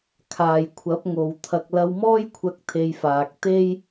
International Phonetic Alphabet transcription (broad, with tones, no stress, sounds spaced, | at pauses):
kʰ aː˨ j kʷʰ ɐ˨˥ p̚ ŋ o˨˧ w t̪ʰ ɐ˧ k̚ l ɐ˧ w m ɔː˥ j kʷʰ ɐ˧ k̚ t̪ʰ e˧ j f aː˨ k̚ t̪ e˥ j